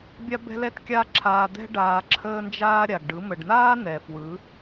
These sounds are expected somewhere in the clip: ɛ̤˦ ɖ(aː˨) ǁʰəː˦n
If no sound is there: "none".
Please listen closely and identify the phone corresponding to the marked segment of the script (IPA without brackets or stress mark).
aː˧